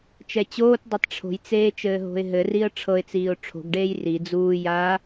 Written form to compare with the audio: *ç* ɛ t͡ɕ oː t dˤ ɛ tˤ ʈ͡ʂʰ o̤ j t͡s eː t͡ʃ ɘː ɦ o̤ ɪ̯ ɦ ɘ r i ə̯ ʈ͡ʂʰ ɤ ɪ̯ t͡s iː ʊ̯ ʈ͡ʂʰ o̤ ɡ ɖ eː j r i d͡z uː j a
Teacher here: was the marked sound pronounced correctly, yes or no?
no